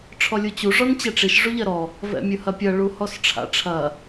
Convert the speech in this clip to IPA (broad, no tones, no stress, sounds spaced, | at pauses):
ʈ͡ʂʰ ɔ lʲ u t͡ɕ u ʐ ɔ n t͡ɕ ɛ ʈ͡ʂ i ʃ ʐ u ʎ ɐ ɾ ɔ | v ɛ̰ mʲ ɯ h ɐ pʲ ɐ ɭ u h ɔ s ʈ͡ʂʰ a̰ ʈ͡ʂʰ ɐ